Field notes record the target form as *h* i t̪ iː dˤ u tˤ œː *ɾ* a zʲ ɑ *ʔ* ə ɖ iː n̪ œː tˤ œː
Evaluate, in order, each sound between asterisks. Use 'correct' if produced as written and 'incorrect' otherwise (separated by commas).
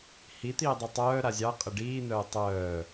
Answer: correct, correct, incorrect